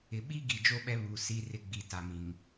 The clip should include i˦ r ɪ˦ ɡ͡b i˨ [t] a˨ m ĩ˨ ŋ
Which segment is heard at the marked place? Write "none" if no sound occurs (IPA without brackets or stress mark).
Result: t